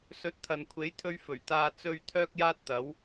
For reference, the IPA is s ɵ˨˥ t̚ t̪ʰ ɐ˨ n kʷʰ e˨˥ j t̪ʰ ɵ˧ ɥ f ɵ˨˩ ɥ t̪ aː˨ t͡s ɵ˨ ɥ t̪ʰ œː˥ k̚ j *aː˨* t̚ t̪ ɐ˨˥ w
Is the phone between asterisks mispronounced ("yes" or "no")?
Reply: yes